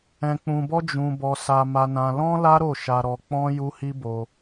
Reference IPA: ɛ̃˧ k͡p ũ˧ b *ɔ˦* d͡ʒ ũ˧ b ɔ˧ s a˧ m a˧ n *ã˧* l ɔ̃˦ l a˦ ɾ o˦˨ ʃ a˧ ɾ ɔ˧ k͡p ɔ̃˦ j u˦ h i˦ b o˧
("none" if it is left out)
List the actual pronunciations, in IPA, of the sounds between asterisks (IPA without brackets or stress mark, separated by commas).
ɔ˦, ã˧